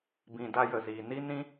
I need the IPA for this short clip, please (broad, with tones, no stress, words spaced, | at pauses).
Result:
bĩ˨ da˧jə˨ziː˨ni˦ nĩ˦